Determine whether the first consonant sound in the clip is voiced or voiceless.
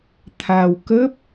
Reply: voiceless